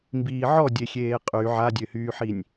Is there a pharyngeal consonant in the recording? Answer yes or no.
yes